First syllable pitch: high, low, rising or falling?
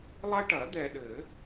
high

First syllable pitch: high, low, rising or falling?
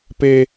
high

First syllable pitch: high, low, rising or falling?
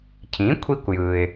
rising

